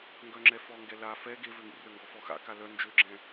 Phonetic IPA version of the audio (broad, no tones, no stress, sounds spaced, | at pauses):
ŋ ɡ œ ŋ͡ǁ ɛ f ɔ ŋ ɡ ɛ l a f ɛ ɡ e v ø ŋ ḭ r ø ŋ ɡ ɔ f ɔ x a̰ k a l œ n d͡ʒ ø ɡ͡ǁ ɛ̃